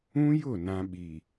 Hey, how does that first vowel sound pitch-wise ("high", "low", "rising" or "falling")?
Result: high